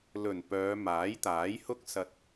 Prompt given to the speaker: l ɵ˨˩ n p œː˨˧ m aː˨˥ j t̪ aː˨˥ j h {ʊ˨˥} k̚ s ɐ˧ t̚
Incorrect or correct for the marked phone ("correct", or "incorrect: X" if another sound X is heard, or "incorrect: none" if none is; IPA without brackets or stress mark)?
incorrect: ʊ˥